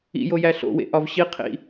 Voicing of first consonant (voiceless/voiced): voiced